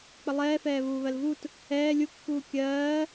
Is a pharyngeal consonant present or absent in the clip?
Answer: absent